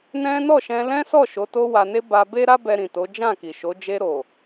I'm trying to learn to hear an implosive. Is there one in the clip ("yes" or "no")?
no